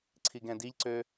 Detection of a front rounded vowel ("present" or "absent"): present